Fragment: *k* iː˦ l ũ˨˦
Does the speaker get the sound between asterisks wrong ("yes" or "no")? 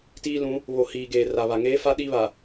yes